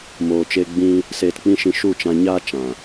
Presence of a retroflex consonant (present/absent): absent